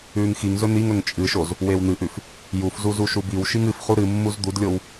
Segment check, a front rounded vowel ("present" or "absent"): absent